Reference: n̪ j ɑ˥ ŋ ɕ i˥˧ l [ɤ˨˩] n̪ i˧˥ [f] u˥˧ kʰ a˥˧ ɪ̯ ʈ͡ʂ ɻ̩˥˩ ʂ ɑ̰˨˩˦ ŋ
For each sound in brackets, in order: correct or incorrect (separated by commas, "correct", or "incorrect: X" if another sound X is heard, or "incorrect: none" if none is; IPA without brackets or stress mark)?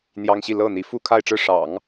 incorrect: ɤ˥˩, correct